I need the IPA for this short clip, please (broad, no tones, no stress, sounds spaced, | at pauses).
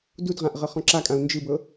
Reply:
d u d ʁ ã ʔ ʁ ɤ χ ɔ̃ ǁ a kʼ ã u̯ n d͡ʒ ɯ b ɤ